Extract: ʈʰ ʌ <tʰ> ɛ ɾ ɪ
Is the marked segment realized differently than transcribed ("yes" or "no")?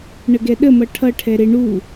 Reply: yes